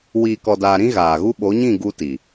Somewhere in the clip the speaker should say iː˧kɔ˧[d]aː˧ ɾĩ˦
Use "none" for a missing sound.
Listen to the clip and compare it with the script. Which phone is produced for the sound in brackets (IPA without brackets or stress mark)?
d